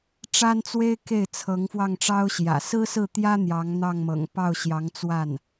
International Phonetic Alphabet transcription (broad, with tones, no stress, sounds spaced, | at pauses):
ʈ͡ʂ a˥ n t͡s w e˥ ɪ̯ k e˥˩ ɪ̯ t͡sʰ ɤ˧˥ ŋ f w ɑ˥˩ ŋ ʈ͡ʂ ɑ˥ ʊ̯ ɕ j ä̰˨˩ s ɹ̩˥ s ɹ̩˥˩ t̪ j ä˥ n̪ j ɑ˧˥ ŋ n̪ ɑ˥˩ ŋ m ɤ̰˨˩ ŋ p ɑ˥˩ ʊ̯ ɕ j ɑ˧˥ ŋ t͡s w a˥˩ n